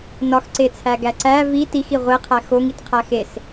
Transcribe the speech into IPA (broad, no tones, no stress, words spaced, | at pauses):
nɒxǀet͡sʰæɡæ ǀæ vi tixi ʁʷeqʰæ xoŋitqʰæ xes